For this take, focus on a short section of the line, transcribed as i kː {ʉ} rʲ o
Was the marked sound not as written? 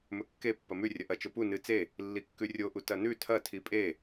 no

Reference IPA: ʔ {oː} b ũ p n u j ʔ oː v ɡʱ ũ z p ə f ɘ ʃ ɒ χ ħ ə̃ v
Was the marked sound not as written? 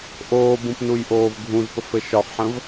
no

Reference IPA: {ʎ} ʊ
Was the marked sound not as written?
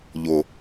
no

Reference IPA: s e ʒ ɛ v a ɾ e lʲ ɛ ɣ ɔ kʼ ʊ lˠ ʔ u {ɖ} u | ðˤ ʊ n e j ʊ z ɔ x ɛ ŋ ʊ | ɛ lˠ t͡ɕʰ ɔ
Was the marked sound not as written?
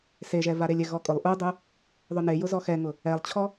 yes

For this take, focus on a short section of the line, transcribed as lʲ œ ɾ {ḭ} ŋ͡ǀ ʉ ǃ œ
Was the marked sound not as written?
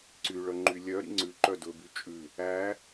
no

